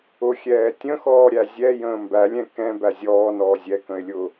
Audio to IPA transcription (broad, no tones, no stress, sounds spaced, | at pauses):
ʊ xʲ ɛː tʲ ə̃ x ɔː ɾʲ æ zʲ ɛ j ə̃ː m b æ lʲ ɛ̃ k ɛ̃ b æ zʲ ɔː n ɔː zʲ ɛ k ə̃ ɪ̯ lʲ ʊː